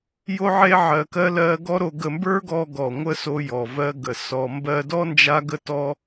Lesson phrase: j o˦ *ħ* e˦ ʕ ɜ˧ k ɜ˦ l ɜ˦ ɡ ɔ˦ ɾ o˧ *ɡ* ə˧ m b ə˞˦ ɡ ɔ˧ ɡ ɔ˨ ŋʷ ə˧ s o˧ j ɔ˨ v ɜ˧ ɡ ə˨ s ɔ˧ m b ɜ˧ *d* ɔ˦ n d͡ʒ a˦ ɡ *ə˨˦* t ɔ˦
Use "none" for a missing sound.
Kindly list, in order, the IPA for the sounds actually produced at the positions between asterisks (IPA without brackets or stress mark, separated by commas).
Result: ʕ, ɡ, d, ə˦